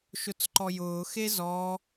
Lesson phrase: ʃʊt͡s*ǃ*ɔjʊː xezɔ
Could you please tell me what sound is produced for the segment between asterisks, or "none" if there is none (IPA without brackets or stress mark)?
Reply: ǃ